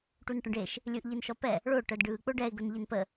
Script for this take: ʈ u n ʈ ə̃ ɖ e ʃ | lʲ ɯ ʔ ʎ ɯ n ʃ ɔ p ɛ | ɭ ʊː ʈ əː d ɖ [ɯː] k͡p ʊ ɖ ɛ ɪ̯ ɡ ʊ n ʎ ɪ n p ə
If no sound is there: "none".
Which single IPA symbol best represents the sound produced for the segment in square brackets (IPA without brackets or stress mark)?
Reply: ɯː